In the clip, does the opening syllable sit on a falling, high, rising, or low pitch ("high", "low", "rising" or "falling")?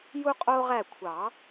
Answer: high